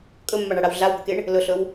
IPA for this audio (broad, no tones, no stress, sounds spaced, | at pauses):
kʼ ɵ mː a ɳ a ɽ a w ɮ a w b ɵ k e ɳ | l ɵ ɬ ɵ w